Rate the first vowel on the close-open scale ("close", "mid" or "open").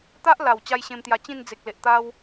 open